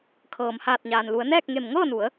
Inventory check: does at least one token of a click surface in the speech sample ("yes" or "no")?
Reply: no